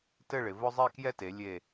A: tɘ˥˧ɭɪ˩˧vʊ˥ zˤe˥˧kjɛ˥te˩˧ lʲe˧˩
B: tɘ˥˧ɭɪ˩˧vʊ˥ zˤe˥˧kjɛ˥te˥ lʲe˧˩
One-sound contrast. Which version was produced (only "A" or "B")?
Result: A